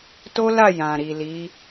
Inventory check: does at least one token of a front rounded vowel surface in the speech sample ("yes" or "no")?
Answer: no